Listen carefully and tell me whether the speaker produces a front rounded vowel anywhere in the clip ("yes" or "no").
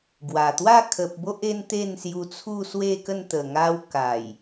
no